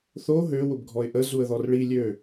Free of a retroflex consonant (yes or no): no